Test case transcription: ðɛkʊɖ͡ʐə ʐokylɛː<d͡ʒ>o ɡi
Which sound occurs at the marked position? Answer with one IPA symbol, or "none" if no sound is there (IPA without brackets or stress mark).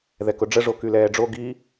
ɖ͡ʐ